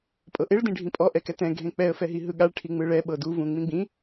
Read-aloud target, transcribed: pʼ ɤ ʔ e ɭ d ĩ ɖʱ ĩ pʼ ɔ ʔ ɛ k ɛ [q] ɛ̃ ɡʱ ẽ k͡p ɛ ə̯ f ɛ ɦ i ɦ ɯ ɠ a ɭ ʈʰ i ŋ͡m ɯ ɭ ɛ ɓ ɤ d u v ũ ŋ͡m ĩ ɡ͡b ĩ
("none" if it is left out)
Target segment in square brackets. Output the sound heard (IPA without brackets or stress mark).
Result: t